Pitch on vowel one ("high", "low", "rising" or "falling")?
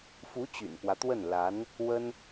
rising